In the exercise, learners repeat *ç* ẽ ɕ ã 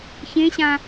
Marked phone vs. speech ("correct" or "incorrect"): correct